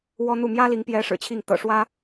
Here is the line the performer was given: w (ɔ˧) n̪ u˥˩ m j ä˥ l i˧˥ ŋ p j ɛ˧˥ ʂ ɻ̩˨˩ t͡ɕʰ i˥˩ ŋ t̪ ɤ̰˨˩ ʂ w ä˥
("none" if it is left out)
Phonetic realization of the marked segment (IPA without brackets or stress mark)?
ɔ˥